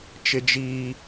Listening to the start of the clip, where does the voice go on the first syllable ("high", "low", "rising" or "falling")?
high